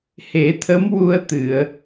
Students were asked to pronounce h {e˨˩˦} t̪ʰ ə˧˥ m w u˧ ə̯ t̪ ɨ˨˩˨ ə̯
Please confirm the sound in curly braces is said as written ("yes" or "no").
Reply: yes